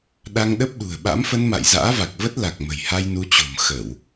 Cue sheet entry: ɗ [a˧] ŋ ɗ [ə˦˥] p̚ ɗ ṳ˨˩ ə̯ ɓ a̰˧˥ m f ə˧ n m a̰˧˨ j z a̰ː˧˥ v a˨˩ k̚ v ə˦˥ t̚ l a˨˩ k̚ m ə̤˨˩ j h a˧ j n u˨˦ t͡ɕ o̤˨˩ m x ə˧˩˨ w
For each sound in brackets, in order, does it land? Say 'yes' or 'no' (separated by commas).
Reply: yes, yes